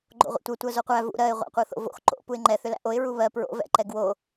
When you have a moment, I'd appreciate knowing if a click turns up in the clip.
yes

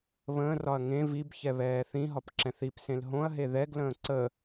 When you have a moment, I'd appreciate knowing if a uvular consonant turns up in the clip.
no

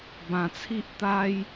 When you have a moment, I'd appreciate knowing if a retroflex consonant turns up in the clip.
no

